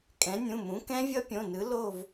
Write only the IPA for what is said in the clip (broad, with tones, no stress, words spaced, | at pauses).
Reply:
kʼɛ̃˩˥nʲũ˩˧˩mũ˩˥ kɛ̃˦˥vʲʌ˦˥pʲõ˩˧˩nɯ˩˥ lo˥˨v